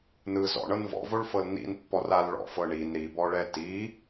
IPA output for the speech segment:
n ɯ z ɔ̰ ɳ ɤ n v ɔ̰ v o ɭ f ɤ l n ḭ n pː ɔ r a l ɭ ɔ̰ f ɤ ɳ i n ɾ i b ɔ ɭ ɛ t i

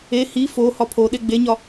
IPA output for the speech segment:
e h i f o h ɒ pʰ o ɗ e ɡ͡b e ɲ ɒ

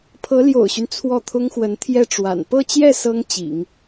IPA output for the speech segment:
pʰ ɤ˧˥ l j o̰˨˩ ʊ̯ ɕ y˦ n t͡sʰ w ɔ˥˩ t̪ʰ ʊ˥ ŋ x w ə˧˥ n t̪ʰ j ɛ˥˩ ʈ͡ʂ w a̰˨˩ n p ɤ˥˧ t͡ɕ j ɛ˥˩ s ɤ˥ ŋ t͡ɕ ḭ˨˩˦ ŋ

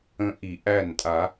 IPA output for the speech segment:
ə̃˦˥ ʔ i˧˩˧ ʔ æ˥˩ n tʼ a˧˩˧

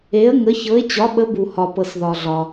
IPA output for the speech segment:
e˨˥ ə̯ ŋ ə˨˥ ç ɤ˨˥ ɪ̯ t͡ɕ ɒ˨˥ ɓ ə˨˥ b u˨ h ɒ˨ p ɤ˨ s ð ɒ˨ ɮ ɒ˨

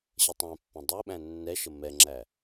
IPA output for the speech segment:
ɕ ə tˤ æ̃ pː ɛ̃ dˤ e ɓ æ̃ nː ɛ ʃ ə m ɛ ŋ͡ǁ æ

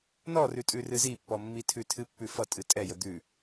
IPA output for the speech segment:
n ɔ r ʉ tʼ ʉ r ɨ z i pː ɔ mː i tʰ ʉ tʰ ɨ pː ʉ f ʌ tʼ ɨ tʼ ɛ j ə d̪ ʉ

